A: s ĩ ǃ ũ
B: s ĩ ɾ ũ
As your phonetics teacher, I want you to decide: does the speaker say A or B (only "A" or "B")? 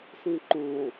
A